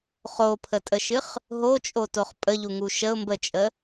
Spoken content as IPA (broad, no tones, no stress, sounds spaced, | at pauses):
χ o pʰ ə tʼ ə ʃ ɨ χ | ɦ o t͡ʃʼ o t o χ pʼ ə ʎ u ŋ u ʃ ə ʊ̯ m b ə t͡ʃʼ ə